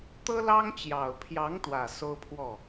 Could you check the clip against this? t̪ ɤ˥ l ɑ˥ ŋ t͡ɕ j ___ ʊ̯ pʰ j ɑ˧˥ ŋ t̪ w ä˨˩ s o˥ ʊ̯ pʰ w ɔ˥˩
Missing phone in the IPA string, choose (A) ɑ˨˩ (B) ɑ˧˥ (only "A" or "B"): A